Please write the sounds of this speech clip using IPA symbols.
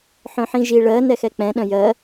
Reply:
ħœ̃ħĩʒi ɭɜ nɛxɛk͡pɛ̃ ɗœ̃jɜ

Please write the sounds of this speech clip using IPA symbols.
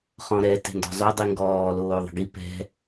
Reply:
χɔ̃ɾɛ tɛ̤ndɔ̤zˤo dˤiŋɡɔː loːðˤə̤ɡi pɛ̤

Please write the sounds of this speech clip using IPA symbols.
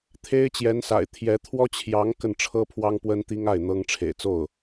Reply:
t̪ʰe˥ɪ̯ t͡ɕjɛ˧˥nsa̰˨˩ɪ̯ t̪ʰjɛ˧˥ t̪ʰwɔ˥t͡ɕʰjɑ˧˥ŋ kə˥˩nʈ͡ʂʰɤ˥pʰwɑ˥ŋ pwə˥nt̪i˥ŋa˥˩ɪ̯ n̪ɤ˥ŋ ʈ͡ʂʰḛ˨˩ɪ̯t͡so˥˩ʊ̯

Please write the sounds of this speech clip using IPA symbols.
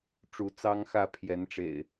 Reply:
ʈ͡ʂu˨˦t͡sɑ˦ŋxä˥˨ pʰjɛ˨˦nʈ͡ʂḛ˨˩ɪ̯

